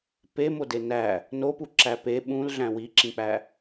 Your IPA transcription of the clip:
p e m o d e n æ | n o p u ǁ æ p e ɓ ũ l ɮ æ̃ w i ǁ ĩ k͡p æ

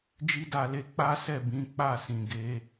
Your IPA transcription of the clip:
d͡ʒ i˦ d a˦˨ l e˧ k͡p a˦ s ɛ˦˨ b ĩ˨˦ k͡p a˦˨ s ĩ˨ ɡ e˨˦

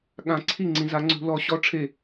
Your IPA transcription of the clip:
ɠ ã˨˩˦ ǀʰ i˥˩ ŋ͡ǀ ĩ˨ z a˨˦ ŋ͡ǀ ṳ˨˦ l ɔ˨˦ ɕ ɔ˧˥˧ ʈ͡ʂʰ e˥˩

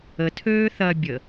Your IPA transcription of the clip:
ə tʰ øː θ ɐ bʲ ə

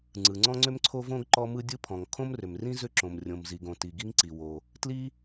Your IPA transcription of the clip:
ŋ͡ǀ ɯ˩ ŋ͡ǀ ɔ̃˥ ŋ͡ǀ ʏ˥ m ǀʰ o˥ v õ˥ ɡ ǃ ɔ˥ m ɯ˥ dʲ ɯ˥ pʰ ɔ̃˩ ŋ kʰ õ˥ m r ʏ˩ m r ĩ˥ z ʏ˥ ǁ õ˩ m rʲ õ˩ m z i˩ ɡ õ˩ t i˩ ɡ i˥ ŋ ǀ i˩ w o˩ | t l i˥

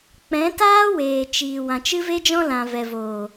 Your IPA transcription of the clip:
k͡p ɛ̃˨˦ t aː˦ w eː˨ t͡ʃ iː˨ w ã˨ t͡ʃ ɨ˦ v e˦ d͡ʒ ɔ̃˦ l ã˨ v ɛ˨ v oː˨

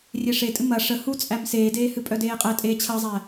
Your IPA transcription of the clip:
rʲ e ʂ e tʼ ɨ m ɐ ʂ ə h u t͡sʼ æ m s eː d eː h ɨ pʼ œ d eː qʼ æ tʼ eː t͡ɕʰ ɐ zˤ æ

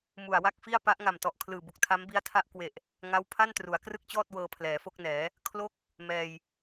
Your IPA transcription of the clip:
m u˨˩ a̯ w a˥˩ k̚ f i˥˩ a̯ p a˦˥ ʔ ŋ a˨˩ m t ɔ˨˩ ʔ kʰ l ɯː˨˩ b u˨˩ k̚ tʰ a˦˥ m b i˦˥ a̯ tʰ a˥˩ ʔ k w e˨˩ ʔ | ŋ a˦˥ w pʰ a˥˩ n t r u˩˦ a̯ k r ɯ˥˩ k̚ t͡ɕ ɔː˥˩ t̚ w ɤː˧ pʰ l ɛː˩˦ f o˥˩ k̚ n ɛː˩˦ | kʰ l o˥˩ k̚ | m ɛː˧ j

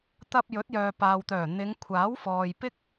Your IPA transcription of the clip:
t̪ ɐ˧ p̚ j ɵ˨˥ t̚ j œː˨ p aː˨ w t̪ œː˨˩ n̪ ɪ˨˧ ŋ kʷʰ aː˨˥ w f ɔː˨ j p ɪ˥ k̚

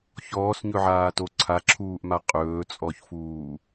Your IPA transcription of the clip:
ç ɔː s ɲ ɵ ʕ aː t o ǀʰ a ǁʰ uː ʔ m a qʼ ɵː t͡sʼ ɔ ç f uː

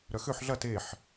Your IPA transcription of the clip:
ɾ œ x ø ħ ɮ ɐ t e ħ

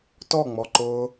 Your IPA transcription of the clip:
t ɔ ŋ͡m ɔ ǃ ʊː

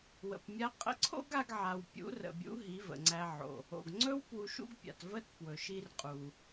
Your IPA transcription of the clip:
w ə̰˨ p mʲ a˦ qʼ ə̰˧ ǀʰ o̰˦ ɡ a˧ ɡ ʕ a˨ w pʲ ṵ˨˦ r ə̰˨ bʲ ṵ˨˦ ɦ i˨˦ v ə̰˨ ŋ͡ǀ æ˧ ʕ o̰˨ | o̰˨ ɡ ŋ͡ǀ ɵ˦ w p w u˧ ʃ ṵ˦ ɡ pʲ a̰˨ t v ə˦ t p w ɵ˨ ʃ i˧ r qʼ u˨

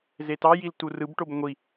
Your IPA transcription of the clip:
z e t ɑ j i l t u r ɯ b ʈ o b ŋʷ i

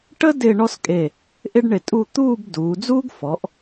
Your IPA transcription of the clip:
ʈ ə˥ d ɪː˥˧ ɳ ɔ˥ s kʼ e˧˩ | ʔ ɪ˥ ɖ ɳ ɪ˧˩ tʼ u˥˧ t̪ uː˥˧ b d uː˩˧ d͡z uː˥ ɡ f ɔ˩˧ ʔ

